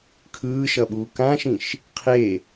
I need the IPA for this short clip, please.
kʰɯːʃʌɓuː kãʃĩʃ | qʰe

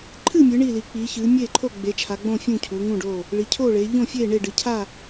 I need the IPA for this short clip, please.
ǃʰɨ˥˨mʲɨ˩˧ ɳi˥˨li˩˧ k͡pi˩˧çɨː˩˧ mʲeː˥˨ǃʰo˥˨ ɡ͡be˩˧t͡ʃʰa˩˧ɡ͡bõ˥˨ fʲũ˥˨cʰuː˩˧ŋũ˥˨ɖoː˥˨ | ɭi˩˧cʰoː˥˨ɭeː˩˧ ʎõ˥˨fʲeː˥˨ɳe˥˨ ɖɨ˩˧cʰa˥˨

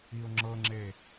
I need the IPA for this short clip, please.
iʊ̯ŋ͡ǁɤŋ͡ǁe

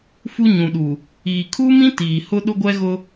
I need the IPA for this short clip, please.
fu˦ɲũ˨ɗu˨ | iː˨ kʰuː˦mĩ˦ tiː˨hʊ˦ ɗʊ˦ɡʷɛ˦ɣʊ˦

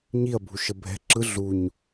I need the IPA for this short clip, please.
ɲiɐ̯ bʱuʃəbʱɛ̤ ǁɯ ɮuɲ

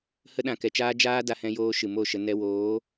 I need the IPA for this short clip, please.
hə˦ɗã˨kɛ˨t͡ʃaː˦ d͡ʒaː˦da˧hɛ̃˧joː˧ ʃɨ˨mo˦˨ʃə˧ nɛ˧woː˨˦

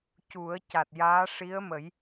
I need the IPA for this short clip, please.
cu˨˩˦ə̯ca˨˩t̚jaː˧˥ ʂi˧˥ə̯mə˨˩˦j

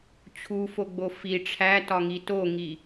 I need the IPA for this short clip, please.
t͡ɕʰufoɡ͡bo fi ʈ͡ʂʰætɒŋi toŋi

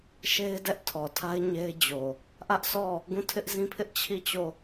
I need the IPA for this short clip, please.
ʃe˦ɪ̯dɛ˦ʔ tʰɔ˨tʰa˦ɪ̯ ɲe˦ɪ̯ d͡ʑo˨ | ʔä˦ʔsʰɔ˦˨ | ɡũ˦˨ tʰɪ˦ʔzĩ˦pʰɪ˦ʔ t͡ɕʰi˦˨t͡ɕo˦˨

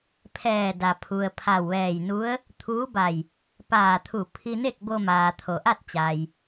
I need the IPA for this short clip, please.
pʰɛː˧˩da˩pʰu˩ə̯ pʰa˧˩wʋɛː˧˩jnu˧˥ə̯ | t̪ʰuː˧˥ba˧˩j | paː˧˩t̪ʰu˧˩pʰi˧ne˥˨k̚ bo˧maː˩t̪ʰo˩ʔa˥˨t̚ t͡ɕa˩j

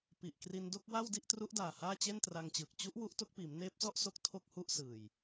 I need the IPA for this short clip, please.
pi˨˩ʔkri˧ndo˥˩k̚wa˥˩w di˥˩ʔtru˦˥ʔdaː˨˩ haː˥˩t͡ɕe˥˩ntra˧ŋt͡ɕɯː˨˩k̚ t͡ɕu˦˥ʔ wu˦˥ʔto˦˥k̚piː˩˦m neː˦˥p̚sɔ˥˩ʔso˦˥k̚ tʰo˥˩k̚hu˥˩ʔsɯː˨˩j

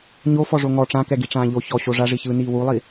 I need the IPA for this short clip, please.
ɲo fɔʐoŋɔ ʈ͡ʂãkɛ ɡiʈ͡ʂãːʎo çɔ ɕoʐaʐiçɯː niːwulˠi

